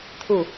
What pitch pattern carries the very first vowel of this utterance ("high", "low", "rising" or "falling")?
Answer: falling